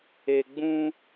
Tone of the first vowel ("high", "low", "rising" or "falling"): low